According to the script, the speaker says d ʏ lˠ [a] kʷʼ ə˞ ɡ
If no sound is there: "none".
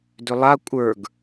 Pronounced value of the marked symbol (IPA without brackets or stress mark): a